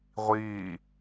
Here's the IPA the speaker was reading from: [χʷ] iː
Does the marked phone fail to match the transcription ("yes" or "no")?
yes